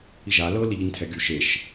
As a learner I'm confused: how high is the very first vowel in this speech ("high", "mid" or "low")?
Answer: high